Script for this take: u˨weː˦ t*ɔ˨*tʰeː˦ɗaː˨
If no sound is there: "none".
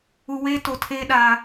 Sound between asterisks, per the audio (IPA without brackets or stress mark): o˨